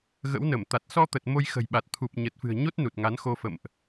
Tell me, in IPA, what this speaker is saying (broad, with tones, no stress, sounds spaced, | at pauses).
ɣ ə̰˧˥ w n ə˧˩ m t̪ a˨˩ t̚ s ɔ˧ t̪ ə˨˩ t̚ m o˧ j x ə̤˨˩ j ɓ a˨˩ t̚ t̪ʰ u˨˩ p̚ ɲ ə˨˩ t̚ f ɨ̤˨˩ ə̯ ɲ o˦˥ t̚ n u˨˩ t̚ ŋ a˨˦ n x o˧ f ə̰˧˨ m ʔ